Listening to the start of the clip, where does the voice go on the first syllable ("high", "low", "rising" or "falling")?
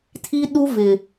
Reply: high